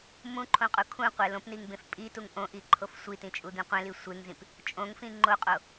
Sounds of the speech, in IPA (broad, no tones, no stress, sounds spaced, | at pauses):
m ũ ǃʰ õ qʼ u kʰ ũ qʷ e l õ p n i ŋ b ẽ f pʼ i t u ŋ ʔ õ ʔ i ǃʰ o f sʷ i t ĩ t͡ʃʼ u d̪ ĩ qʷ ẽ l i sʷ e ŋ z ĩ p | t͡ʃʼ õ ŋ f ĩ ŋ͡ǃ o qʼ o